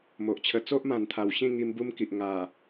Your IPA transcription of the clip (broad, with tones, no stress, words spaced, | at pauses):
mo˨ʔt͡ɕʰə˧ t͡so˦ʔmã˨˩nt̪ʰa˨˩wɕĩ˥˧ ŋi˧mbu˦mki˨ʔ ŋa˨˩